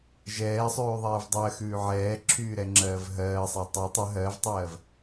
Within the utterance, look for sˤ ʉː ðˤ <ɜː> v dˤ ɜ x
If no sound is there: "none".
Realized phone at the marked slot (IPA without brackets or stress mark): ɛː